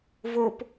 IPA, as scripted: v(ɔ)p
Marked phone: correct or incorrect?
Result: incorrect